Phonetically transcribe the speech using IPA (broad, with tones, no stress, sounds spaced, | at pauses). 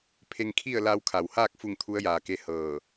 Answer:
pʰ e˧ ŋ kʰ i˥˨ ə̯ l a˧ w kʰ a˩ w h aː˥˨ k̚ f u˥˨ ŋ t̪ʰ u˧˥ ə̯ j aː˩ k e˧˥ h ɤː˧˩